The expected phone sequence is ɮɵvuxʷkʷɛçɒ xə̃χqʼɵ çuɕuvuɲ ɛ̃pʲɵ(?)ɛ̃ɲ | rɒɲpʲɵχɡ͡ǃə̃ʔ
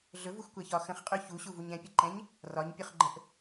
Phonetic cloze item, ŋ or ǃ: ǃ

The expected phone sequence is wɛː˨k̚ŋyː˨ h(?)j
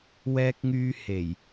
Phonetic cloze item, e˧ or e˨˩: e˨˩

